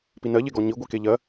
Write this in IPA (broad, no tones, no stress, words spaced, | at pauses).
pinɜʎeɡɔ ɲiɡʷi keʎɜ